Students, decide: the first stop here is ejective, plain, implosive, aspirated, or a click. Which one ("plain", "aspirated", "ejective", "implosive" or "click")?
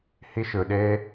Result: implosive